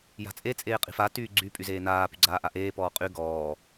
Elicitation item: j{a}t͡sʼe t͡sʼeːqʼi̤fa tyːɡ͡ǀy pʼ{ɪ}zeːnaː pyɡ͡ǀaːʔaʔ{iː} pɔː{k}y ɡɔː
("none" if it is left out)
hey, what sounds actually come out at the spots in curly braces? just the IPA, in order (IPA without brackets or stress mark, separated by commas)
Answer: a̤, y, eː, qʼ